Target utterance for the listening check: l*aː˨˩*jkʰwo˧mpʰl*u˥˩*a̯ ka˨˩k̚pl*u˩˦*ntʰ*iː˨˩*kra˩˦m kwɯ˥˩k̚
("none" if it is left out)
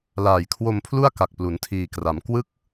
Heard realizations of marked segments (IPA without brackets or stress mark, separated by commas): aː˨˩, u˥˩, u˩˦, iː˨˩